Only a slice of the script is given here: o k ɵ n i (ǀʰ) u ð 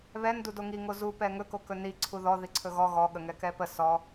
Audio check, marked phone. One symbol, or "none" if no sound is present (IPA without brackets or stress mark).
ǀʰ